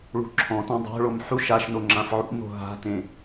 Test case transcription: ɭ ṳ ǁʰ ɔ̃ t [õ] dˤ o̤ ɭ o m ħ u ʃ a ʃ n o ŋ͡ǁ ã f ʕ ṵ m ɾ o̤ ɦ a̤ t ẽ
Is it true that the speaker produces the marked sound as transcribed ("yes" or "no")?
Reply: yes